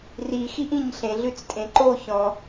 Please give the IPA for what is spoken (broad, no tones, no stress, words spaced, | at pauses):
rixiʔĩɲ ɬẽɮʉt͡stʼẽ ǃo çɔ̃